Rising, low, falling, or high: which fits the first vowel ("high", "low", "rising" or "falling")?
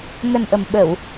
low